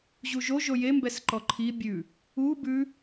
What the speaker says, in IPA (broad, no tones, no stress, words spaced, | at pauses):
ʑuʒo ʒojembɛs ǃɔǃʰi bʲʉ | u bʉ